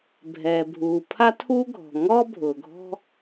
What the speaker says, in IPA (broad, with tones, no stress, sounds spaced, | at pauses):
bʱ ɛː˩ bʱ uː˩ pʰ a˥ tʰ uː˥ ɡʱ ɔ̤˩ ŋ ɔː˥ bʱ ʊː˩ ɡʱ ɔ̤˥